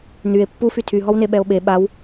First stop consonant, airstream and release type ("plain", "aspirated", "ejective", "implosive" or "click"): plain